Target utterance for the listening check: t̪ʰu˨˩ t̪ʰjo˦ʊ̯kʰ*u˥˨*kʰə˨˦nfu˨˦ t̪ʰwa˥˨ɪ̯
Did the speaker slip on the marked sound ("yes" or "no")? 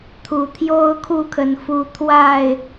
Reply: no